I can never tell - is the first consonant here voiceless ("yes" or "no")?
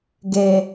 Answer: no